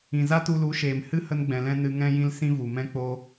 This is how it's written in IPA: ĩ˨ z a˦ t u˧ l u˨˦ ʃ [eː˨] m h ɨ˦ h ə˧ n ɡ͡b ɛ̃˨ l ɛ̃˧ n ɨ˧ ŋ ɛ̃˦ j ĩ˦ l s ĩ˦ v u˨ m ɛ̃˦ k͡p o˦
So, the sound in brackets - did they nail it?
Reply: yes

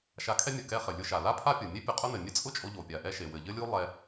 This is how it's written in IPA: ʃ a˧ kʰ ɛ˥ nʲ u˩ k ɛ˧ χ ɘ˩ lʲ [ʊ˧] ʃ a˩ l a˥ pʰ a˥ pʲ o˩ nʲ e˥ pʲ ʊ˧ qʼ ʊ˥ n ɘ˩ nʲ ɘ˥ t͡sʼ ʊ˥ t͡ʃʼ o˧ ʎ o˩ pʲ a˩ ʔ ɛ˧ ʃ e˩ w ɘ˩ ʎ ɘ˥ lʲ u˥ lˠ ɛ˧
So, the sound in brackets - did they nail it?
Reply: yes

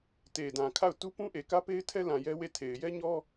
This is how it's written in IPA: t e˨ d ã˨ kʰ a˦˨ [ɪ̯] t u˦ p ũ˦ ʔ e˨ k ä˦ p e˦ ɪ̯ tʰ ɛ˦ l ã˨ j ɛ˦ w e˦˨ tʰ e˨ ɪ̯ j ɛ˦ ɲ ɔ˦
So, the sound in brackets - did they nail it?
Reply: no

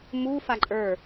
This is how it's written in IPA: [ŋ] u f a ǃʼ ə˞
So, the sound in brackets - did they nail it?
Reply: no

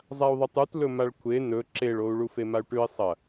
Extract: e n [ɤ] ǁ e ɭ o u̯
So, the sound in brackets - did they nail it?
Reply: no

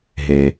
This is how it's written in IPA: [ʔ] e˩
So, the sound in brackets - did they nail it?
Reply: no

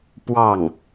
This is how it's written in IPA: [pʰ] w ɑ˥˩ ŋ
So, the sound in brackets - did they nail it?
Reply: no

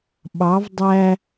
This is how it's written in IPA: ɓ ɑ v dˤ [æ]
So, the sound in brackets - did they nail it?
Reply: yes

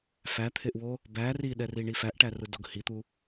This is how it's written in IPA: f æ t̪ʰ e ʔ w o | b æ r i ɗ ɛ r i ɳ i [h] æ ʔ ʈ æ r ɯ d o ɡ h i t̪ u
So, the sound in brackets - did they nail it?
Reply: no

